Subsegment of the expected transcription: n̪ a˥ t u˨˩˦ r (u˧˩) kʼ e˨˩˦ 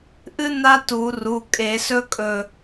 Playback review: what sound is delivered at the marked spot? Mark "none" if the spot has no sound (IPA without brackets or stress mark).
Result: u˩˧˩